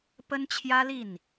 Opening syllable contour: high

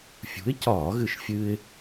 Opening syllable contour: rising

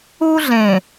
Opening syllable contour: high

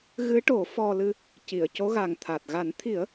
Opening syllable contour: rising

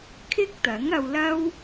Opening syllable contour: high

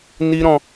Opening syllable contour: high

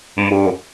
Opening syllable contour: low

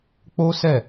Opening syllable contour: high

